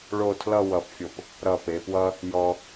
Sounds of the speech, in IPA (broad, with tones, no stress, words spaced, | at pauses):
ɭo˥˧ tʰlʌ˥˧wʌ˧˩pfʲo˧˩p | ɾʌ˧˩pe˩˧pwʌ˥ | jɔ˧